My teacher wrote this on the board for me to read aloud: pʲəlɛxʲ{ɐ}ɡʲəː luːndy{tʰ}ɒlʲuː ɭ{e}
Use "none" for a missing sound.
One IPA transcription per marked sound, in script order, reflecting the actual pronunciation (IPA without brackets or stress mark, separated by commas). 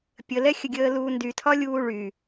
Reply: ə, tʰ, y